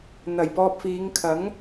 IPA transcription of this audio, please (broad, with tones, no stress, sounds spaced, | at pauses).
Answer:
n̪ ɐ˨˩ j p ɔː˧ p̚ f iː˨˧ ŋ kʰ ɐ˨˥ ŋ